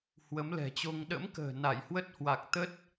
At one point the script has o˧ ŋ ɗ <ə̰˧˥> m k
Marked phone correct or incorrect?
correct